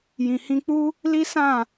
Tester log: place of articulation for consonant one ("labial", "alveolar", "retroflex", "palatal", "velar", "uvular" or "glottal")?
palatal